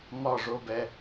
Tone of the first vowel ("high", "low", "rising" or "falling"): falling